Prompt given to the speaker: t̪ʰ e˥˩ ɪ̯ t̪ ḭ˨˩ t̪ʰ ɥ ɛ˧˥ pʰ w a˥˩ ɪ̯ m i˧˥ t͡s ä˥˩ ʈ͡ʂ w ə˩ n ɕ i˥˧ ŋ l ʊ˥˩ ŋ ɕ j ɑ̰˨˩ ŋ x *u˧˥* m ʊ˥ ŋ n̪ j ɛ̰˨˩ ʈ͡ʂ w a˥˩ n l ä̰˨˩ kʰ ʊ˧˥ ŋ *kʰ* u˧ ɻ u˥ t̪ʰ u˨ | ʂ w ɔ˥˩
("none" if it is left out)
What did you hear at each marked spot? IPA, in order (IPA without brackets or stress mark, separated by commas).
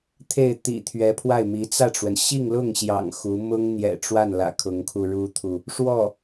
u˧˥, kʰ